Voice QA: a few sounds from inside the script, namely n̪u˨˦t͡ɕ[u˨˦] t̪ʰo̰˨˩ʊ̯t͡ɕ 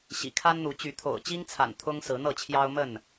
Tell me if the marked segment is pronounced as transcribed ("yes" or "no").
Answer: no